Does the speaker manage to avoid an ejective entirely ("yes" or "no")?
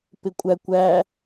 no